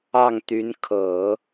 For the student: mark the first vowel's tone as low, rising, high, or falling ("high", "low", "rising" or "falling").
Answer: falling